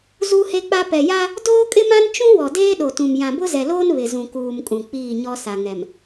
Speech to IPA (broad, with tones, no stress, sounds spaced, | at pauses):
z u˦ h e˦ k͡p a˦ p ɛ˨ j a˦ | d oː˦ kʼ ɪ˦ m ã˦ n t͡ʃ ũ˦ w ɔ˨ d eː˦ ɗ o˨ t ũ˨ m j ã˨ b ʊ˦ z ɛ˨ l oː˦ n β ɪ˨ z ũ˨ k uː˨ m kʼ ũ˨ k͡p iː˦˨ ɲ ɔ˦ s a˨ ŋ ɛ˨ m